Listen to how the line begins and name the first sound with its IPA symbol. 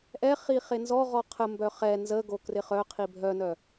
ʔ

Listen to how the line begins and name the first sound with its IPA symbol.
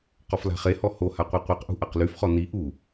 q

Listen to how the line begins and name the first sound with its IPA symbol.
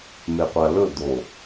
m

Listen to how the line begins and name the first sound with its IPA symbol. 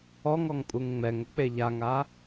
ɔ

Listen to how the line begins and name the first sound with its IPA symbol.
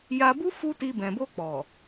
j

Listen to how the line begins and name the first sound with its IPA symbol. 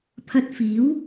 pʰ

